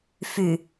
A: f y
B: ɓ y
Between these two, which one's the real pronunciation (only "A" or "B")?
A